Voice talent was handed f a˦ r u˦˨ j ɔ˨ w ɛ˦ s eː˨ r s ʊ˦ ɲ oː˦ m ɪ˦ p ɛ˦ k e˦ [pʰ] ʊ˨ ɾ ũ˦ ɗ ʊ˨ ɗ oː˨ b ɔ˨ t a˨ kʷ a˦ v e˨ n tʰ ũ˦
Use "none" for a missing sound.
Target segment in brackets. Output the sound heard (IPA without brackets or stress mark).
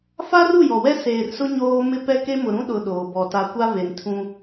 m